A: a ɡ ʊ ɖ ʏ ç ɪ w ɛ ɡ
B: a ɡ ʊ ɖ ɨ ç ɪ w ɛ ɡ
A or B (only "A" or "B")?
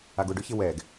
A